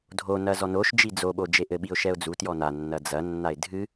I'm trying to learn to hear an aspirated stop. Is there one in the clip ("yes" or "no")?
no